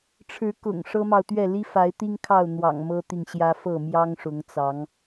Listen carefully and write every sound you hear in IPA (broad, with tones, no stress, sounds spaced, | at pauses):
ʈ͡ʂʰ ɻ̩˨˦ k ʊ̰˨˩ ŋ ʂ ɤ˦ m ɑ˨ ʊ̯ t̪ ɥ ɛ˥˨ l i˦ f a˨˦ ɪ̯ t̪ i˦ ŋ kʰ ɑ˥˨ ʊ̯ n̪ w ɑ̰˨˩ ŋ m ɤ˦ t̪ i˨ ŋ ɕ j ä˦ f ɤ˥˨ m j ɑ˦ ŋ ʂ ʊ˨˦ ŋ t͡s ɑ˨˦ ŋ